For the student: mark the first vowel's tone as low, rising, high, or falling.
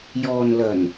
low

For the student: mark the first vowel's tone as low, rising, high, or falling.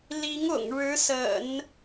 rising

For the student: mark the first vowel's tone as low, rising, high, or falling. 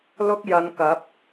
high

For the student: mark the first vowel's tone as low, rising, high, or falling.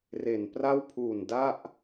low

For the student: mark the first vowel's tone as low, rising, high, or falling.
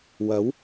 rising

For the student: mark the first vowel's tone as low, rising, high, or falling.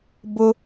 high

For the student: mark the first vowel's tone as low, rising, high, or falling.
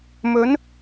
rising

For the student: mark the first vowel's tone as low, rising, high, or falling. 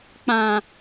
low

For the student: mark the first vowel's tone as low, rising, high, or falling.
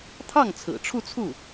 falling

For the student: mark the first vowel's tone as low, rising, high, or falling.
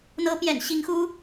rising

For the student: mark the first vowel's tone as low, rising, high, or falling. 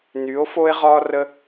rising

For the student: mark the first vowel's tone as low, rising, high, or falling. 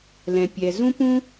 low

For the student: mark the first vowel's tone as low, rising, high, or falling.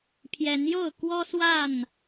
rising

